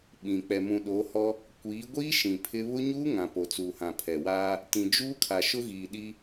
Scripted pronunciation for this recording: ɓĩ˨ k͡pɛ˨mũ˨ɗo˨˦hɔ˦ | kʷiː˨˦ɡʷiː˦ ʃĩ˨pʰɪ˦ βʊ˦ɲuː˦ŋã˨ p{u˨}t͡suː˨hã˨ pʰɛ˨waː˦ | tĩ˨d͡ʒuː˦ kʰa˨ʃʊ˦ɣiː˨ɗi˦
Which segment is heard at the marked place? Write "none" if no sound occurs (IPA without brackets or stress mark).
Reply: o˨